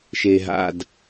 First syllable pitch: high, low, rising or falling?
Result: low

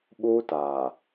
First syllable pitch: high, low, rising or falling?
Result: high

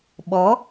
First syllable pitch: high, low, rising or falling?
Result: rising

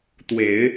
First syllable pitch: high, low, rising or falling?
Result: low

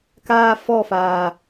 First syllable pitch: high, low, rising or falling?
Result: high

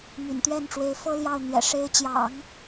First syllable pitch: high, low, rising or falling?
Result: low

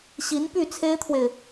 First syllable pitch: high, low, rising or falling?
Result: rising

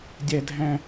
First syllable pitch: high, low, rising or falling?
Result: low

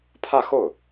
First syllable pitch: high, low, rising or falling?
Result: falling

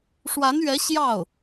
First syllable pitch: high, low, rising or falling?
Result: rising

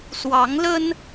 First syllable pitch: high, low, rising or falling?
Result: rising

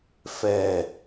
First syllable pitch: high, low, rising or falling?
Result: low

